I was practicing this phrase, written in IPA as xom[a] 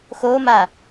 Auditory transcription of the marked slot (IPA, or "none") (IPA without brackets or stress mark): a